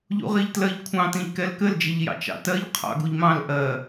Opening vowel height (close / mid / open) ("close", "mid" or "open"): close